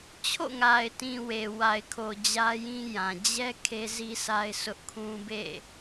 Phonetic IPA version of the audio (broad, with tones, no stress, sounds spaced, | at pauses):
t͡ɕʰ o̰˦˨ ŋ a˨ ɪ̯ t ĩ˨ w e˨ w a˨ ɪ̯ kʰ o˨ d͡ʑ ä˦ j ĩ˦ j ã˨ d͡ʑ ɛ˦ kʰ e˦ z i˦ sʰ a˦ ɪ̯ sʰ ʊ˦ ʔ kʰ ũ˦ b ḛ˦˨